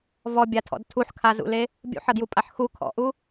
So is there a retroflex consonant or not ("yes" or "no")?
no